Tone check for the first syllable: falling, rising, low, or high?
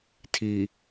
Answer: low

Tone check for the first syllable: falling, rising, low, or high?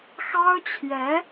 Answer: high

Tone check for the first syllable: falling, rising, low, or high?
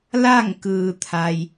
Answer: falling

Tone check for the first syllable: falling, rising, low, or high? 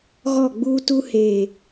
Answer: falling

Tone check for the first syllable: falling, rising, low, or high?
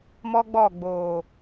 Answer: high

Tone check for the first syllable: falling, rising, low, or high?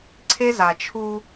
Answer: high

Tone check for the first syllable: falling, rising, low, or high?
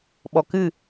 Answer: low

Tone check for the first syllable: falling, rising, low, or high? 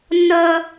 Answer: high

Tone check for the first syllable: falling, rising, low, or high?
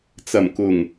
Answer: low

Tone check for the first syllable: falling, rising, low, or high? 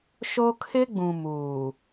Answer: high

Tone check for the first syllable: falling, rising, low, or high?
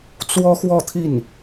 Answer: high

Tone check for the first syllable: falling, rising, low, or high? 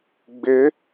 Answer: rising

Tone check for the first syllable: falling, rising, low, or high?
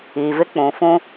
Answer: low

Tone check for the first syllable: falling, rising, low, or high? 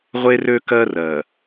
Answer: high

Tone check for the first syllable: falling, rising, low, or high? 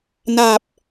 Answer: low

